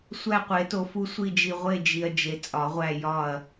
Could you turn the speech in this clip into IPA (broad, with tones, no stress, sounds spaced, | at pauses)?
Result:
sʷ æ˦˨ qʷ e˨˩˦ t o˨ f u˦˨ sʷ i˦˨ d͡ʒ i˨ ʁʷ e˦˨ d͡ʒ i˨ ɐ̯ d͡ʒ e˨ t͡sʼ ɒ˨˩˦ ʁʷ æ˦˨ j ɒ˦˨ ɐ̯